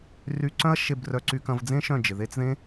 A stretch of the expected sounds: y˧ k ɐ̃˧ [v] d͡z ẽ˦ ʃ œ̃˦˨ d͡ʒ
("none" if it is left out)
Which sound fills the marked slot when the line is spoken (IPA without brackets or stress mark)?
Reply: v